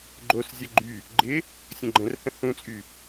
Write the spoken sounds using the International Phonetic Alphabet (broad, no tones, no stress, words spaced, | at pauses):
ɡ͡ǃoszʲə ɡ͡ǃy | ɡ͡ǃɪ | sʲə̃ɡ͡ǃə̃rhə̃ hũt͡sʼy